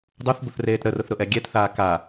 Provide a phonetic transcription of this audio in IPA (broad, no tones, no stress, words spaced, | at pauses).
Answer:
dˤuθbʊθreːt ɾərʊθɾʊʔɛ ɡʲɛtθaː ka